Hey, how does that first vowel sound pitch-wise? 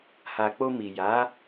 low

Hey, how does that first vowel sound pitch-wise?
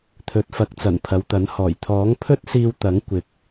rising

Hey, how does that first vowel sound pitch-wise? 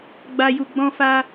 low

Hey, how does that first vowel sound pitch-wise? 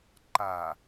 low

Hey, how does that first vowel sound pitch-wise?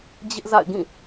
high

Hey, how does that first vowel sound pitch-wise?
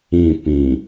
falling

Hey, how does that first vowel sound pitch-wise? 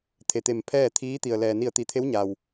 low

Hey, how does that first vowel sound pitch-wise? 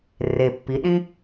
low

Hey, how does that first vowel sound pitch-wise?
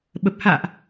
low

